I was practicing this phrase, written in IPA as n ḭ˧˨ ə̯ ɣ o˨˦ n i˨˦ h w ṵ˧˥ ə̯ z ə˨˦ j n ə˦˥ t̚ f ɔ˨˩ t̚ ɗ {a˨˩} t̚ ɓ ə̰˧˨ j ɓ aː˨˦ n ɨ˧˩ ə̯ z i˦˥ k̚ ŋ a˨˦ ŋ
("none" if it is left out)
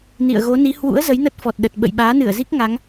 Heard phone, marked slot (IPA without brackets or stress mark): ə˨˩